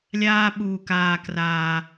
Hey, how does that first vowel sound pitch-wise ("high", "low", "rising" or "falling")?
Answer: high